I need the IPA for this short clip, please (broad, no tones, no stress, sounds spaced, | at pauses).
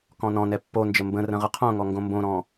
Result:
k ɔ̃ n ɔ̃ n ɛ pː o n d͡ʒ ə m b ə̃ r ə̃ ʁ ə qʰ õ ŋ ɔ ŋ ɡ õ m b õ ɾ ɔ̃